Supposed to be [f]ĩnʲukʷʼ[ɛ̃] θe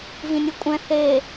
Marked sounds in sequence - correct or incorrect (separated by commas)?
incorrect, correct